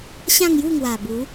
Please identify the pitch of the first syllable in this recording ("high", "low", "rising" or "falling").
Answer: falling